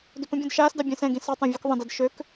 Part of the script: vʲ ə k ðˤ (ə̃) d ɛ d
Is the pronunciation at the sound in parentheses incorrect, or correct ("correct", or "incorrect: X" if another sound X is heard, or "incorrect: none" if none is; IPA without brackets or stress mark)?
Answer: correct